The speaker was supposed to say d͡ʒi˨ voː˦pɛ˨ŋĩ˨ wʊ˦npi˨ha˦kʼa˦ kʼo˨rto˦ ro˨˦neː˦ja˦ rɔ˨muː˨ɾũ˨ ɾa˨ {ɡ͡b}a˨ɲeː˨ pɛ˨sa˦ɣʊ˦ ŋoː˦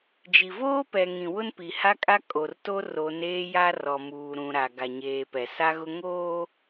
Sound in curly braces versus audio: incorrect: ɡ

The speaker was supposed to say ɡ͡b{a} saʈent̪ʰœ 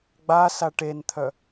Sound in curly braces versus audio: correct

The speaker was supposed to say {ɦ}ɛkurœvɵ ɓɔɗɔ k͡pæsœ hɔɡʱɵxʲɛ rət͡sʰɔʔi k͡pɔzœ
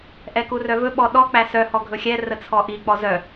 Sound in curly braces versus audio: incorrect: ʔ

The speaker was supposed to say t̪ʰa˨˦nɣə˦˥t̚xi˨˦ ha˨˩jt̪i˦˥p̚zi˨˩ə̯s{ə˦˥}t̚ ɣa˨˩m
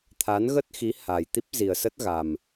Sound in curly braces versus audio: correct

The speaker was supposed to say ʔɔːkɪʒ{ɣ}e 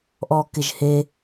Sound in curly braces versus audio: incorrect: h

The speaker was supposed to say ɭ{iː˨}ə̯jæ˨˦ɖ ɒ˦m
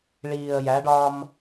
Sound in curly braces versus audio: correct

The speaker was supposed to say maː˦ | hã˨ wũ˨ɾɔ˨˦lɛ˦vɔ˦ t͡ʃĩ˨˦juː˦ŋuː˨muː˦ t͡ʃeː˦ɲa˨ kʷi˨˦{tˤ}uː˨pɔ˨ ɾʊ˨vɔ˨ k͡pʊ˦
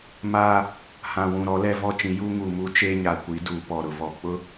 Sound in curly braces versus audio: incorrect: d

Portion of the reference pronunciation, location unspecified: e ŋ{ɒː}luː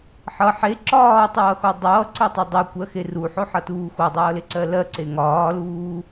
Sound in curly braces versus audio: correct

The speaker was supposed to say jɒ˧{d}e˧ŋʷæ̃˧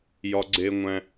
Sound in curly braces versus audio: incorrect: ɡ͡ǀ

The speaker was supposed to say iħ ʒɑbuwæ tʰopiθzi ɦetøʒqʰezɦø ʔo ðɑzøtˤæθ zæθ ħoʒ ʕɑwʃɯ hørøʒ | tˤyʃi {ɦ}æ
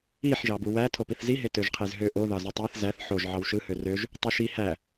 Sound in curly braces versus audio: incorrect: h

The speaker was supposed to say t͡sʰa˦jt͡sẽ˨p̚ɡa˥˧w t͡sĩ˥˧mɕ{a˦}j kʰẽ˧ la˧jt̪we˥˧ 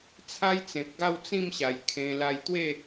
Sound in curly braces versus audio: incorrect: a˨˩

